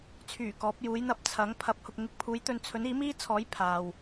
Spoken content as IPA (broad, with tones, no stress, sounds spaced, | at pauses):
t͡sʰ yː˨˩ k ɔː˨˥ p̚ j uː˨˥ j n̪ ɐ˧ p̚ t͡sʰ ɐ˨˥ ŋ pʰ ɐ˨˥ p̚ h ʊ˨ k̚ ŋ ɪ˨˥ k̚ pʰ uː˨˥ j t̪ ɵ˧ n t͡sʰ ɵ˨˥ n iː˨˥ m iː˥ t͡sʰ ɔː˨˥ j pʰ aː˨ w